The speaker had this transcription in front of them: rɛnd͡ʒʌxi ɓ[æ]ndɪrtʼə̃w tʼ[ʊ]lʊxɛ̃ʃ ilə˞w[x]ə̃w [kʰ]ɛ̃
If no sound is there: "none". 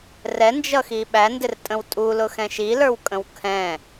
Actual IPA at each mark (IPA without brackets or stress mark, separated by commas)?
æ, u, kʼ, kʰ